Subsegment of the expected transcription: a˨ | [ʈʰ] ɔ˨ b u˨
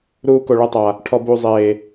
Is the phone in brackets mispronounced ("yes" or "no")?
no